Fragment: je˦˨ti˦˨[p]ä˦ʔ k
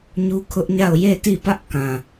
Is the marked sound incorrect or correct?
correct